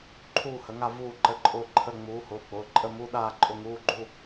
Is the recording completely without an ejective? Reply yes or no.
no